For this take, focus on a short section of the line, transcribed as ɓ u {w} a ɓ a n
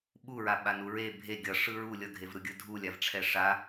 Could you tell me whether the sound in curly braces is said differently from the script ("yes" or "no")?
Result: yes